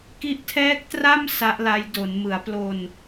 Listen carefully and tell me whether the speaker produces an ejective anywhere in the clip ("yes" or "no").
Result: no